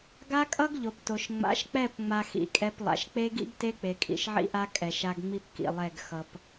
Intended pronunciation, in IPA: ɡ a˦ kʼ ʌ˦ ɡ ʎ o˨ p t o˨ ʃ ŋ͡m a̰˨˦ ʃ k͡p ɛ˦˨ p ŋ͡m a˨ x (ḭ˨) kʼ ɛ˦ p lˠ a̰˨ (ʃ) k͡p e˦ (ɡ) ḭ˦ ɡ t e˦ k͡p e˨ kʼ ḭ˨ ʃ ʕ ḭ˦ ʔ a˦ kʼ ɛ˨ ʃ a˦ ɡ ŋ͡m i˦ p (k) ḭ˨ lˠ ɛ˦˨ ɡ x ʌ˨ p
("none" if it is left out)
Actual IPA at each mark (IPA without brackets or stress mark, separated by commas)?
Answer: ḭ˨, ʃ, ɡ, k